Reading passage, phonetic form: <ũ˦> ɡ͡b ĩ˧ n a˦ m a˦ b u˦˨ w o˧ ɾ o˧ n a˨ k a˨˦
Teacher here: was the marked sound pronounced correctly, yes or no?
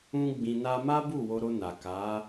yes